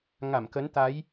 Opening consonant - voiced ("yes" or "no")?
yes